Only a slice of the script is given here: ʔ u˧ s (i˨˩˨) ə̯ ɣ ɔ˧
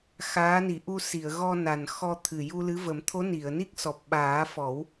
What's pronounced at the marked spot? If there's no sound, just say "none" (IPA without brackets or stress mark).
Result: i˨˩˨